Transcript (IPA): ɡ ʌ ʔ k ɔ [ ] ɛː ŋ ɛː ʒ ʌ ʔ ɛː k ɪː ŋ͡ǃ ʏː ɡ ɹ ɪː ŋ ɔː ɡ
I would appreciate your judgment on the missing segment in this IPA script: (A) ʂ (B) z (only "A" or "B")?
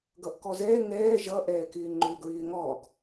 B